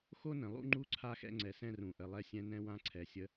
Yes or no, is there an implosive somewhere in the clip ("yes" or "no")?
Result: no